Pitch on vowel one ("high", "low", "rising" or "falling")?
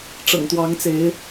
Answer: low